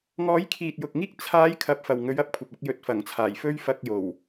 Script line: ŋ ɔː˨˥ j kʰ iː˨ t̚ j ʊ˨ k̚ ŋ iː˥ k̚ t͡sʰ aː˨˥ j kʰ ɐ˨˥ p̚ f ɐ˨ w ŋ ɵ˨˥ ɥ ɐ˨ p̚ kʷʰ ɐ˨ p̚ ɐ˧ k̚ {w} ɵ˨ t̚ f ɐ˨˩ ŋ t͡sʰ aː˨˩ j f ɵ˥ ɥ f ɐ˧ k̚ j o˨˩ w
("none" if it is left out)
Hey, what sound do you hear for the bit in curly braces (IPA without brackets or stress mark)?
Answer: j